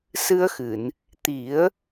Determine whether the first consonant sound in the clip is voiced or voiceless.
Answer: voiceless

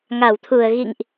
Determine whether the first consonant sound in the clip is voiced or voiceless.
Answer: voiced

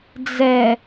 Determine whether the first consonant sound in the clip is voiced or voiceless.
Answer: voiced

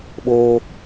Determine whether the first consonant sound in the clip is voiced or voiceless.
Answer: voiced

